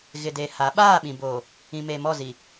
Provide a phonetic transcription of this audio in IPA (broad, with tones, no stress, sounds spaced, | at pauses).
ɣ ɪ˨ d e˨ h a˨˦ ɓ aː˦˨ ɓ ĩ˨ b oː˨ | ĩ˨ m e˨ m ɔ˦˨ z i˨